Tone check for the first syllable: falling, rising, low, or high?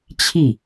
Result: falling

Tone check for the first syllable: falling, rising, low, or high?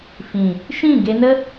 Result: low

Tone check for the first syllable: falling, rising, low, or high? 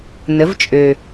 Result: rising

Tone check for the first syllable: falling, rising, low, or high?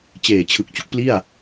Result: low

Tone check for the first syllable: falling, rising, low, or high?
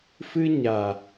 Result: high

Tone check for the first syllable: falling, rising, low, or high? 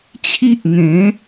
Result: high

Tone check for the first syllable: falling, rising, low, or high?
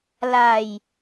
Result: low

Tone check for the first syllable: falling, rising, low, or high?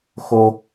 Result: low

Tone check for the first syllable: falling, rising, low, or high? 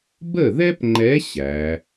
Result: falling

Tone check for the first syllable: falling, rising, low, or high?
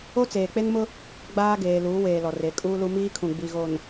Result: high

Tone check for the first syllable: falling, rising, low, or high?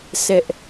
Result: high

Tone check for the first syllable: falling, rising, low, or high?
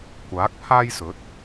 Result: rising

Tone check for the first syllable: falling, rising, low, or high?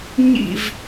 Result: falling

